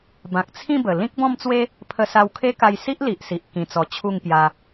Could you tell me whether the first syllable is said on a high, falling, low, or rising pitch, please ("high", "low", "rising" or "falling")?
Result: low